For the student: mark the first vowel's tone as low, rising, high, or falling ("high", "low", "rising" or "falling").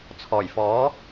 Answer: low